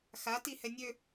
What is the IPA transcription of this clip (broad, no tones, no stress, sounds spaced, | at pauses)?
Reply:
x a t i h ɛ nʲ ø